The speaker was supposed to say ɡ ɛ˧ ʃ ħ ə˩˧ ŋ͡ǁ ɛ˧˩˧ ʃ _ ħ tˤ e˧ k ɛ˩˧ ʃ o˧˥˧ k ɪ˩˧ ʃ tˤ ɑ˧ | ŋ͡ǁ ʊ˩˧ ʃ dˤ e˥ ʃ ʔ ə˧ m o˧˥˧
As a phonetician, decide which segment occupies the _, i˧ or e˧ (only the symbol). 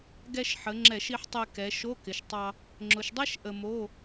i˧